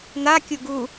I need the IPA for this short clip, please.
n̪ a kʲ u ɡ u

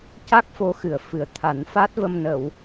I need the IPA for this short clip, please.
c a˦˥ k̚ f o˧˥ x ɨ˨˩ ə̯ f ɨ˨˩˦ ə̯ t̪ʰ a˨˩˦ n f a˦˥ t̚ v ə˧ m n ə˨˩˨ w

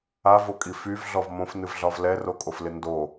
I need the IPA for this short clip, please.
a v o kʼ i f y v ɮ ɔ v m õ f n ɨ v ɮ ɒ v l ɛ r o kʼ o f l ɪ n d o

